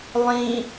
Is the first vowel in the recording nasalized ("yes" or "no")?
yes